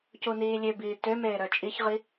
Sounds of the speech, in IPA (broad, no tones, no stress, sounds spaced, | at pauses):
c u n iː lʲ ø b iː t ø m eː ɾ œ t͡ʃʼ i ç ʁ i